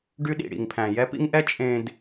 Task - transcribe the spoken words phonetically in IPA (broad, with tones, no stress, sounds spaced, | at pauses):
ɖ y˦ ɗ ḭ˨ ɽ ḭ˨ ŋ pʰ æ̃˨ j ɛ˦ p ḭ˦ ŋ ʔ ɛ˦ t͡ʃʼ ẽ˨ d